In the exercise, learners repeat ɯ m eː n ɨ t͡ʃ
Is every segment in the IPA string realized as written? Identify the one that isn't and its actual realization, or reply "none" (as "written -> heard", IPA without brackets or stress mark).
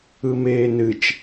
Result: none